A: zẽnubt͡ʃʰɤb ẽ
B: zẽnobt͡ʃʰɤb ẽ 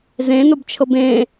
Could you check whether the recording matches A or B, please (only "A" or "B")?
B